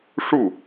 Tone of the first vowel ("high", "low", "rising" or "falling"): falling